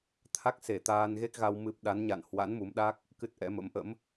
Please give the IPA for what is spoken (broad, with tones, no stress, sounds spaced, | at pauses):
t̪ʰ a˦˥ k̚ s e˧˩ t̪ aː˧ n ɣ e˦˥ k̚ ɣ a˧ w m ɨ˦˥ p̚ ɗ a˨˦ n ɲ a̰˧˨ n h w a̰˧˥ n m u˨˦ m ɗ a˦˥ k̚ | k ɨ˦˥ t̚ ʔ ɛ̰˧˥ m ə̰˧˥ m ʔ ə̰˧˥ m